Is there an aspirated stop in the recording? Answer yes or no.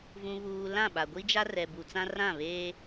no